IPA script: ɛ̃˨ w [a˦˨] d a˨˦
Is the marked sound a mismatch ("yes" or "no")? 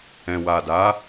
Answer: yes